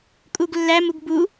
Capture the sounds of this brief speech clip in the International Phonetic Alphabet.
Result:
kʼuɡlːæmuɡ bu

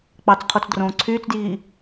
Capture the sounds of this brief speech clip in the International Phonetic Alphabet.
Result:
k͡pɑt͡sqʰot͡sdrõː ǀʰyːt͡sdjiː

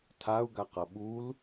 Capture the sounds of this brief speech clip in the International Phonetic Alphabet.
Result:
tʰau̯ɡaqʌ ɓul

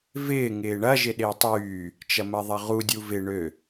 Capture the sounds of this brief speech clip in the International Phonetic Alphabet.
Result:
vɪː ŋɪːɳɐ ʒɪɗɪːtˤyː | t͡ʃɐmɐðˤɐʁu dʲuvɪ ɳø

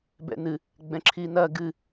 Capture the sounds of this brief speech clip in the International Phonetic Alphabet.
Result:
bɛ̰nɨ | ɡ͡bɛ̃ǁʰinɐ ɡɨ

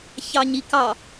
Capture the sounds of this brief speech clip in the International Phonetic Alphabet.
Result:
çɑɲikɑ

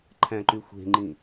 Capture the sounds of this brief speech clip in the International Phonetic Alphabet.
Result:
ǃʰæ̃ǃyxʷe̤ŋ͡ǃĩ

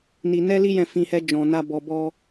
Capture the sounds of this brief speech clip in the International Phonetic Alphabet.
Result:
ni˧ nɛ˦li˦ jɛ̃˦˨fĩ˧hɛ˦ d͡ʒɔ̃˧na˦ bɔ˧ bɔ˧

